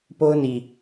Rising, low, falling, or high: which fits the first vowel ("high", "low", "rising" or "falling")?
high